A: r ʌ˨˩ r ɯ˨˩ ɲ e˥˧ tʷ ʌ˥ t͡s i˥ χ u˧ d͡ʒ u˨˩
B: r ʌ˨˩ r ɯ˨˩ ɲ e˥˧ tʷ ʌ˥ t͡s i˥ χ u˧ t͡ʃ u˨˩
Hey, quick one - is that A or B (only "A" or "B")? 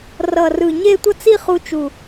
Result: B